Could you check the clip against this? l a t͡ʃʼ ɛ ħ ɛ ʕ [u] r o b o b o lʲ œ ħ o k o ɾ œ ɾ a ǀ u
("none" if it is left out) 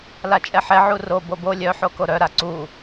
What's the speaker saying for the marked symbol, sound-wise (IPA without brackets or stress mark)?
u